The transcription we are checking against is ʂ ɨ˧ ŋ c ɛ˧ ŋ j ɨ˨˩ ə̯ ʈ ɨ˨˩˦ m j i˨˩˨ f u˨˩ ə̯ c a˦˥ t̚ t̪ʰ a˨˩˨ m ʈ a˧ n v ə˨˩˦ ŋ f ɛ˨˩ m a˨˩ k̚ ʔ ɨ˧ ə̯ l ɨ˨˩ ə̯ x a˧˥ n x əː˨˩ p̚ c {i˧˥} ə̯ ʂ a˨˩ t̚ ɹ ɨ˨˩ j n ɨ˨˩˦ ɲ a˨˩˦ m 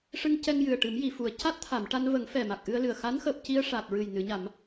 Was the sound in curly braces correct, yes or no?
no